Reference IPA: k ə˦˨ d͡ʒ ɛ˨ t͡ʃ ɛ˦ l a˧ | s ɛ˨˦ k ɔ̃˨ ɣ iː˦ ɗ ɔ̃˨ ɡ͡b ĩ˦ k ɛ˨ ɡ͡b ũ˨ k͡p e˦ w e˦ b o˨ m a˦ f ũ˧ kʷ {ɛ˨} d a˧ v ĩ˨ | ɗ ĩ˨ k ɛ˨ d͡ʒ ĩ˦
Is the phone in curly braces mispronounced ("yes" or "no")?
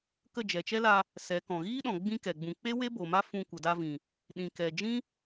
yes